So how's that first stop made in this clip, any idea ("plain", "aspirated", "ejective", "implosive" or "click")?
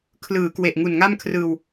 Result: aspirated